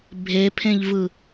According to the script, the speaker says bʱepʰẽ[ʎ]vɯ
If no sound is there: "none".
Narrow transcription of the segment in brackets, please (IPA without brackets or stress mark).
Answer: ʎ